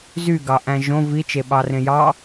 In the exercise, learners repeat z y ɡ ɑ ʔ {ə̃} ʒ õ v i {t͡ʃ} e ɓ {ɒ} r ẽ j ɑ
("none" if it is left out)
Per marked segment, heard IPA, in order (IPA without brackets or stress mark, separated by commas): æ̃, t͡ʃ, ɑ